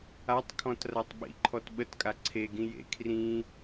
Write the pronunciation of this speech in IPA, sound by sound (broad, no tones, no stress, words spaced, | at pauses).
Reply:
atˤkʰɔ̃t ratˤɓḭǃʰɔt ɓətkʼa ǀʰeɡĩ jḛ kʰrĩ